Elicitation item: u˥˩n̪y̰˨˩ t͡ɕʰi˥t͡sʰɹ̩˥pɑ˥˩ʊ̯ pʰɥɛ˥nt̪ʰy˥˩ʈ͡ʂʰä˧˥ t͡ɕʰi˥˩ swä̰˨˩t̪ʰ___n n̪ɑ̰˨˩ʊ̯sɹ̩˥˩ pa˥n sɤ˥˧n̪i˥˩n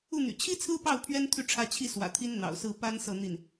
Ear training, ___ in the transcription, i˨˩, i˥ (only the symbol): i˥